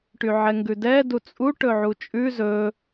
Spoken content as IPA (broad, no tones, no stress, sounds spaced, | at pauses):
ʈ y ʕ ɛ ŋ ɡ ʉ d ɛ d u t͡sʼ u ʈ ɵ ʕ u t͡ʃʼ ʉ z ɵ